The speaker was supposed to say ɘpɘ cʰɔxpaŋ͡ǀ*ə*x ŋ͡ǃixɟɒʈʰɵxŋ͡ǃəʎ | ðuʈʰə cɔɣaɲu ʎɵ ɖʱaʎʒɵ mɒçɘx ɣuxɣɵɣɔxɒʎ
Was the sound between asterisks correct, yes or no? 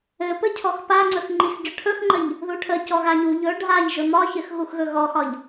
no